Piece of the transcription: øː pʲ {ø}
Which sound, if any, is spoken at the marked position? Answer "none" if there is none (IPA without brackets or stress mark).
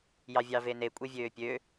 ø